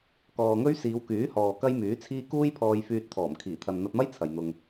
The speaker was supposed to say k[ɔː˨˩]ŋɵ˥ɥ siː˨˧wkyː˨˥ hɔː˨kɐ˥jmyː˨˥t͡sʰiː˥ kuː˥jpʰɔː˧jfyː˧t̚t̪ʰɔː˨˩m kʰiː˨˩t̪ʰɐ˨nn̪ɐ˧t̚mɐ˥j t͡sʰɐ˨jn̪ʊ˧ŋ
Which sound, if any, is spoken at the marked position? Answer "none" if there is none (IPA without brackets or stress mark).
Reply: ɔː˨